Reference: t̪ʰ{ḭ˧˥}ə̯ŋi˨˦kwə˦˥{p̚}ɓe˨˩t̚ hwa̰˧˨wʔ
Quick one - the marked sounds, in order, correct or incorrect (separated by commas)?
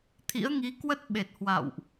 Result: correct, incorrect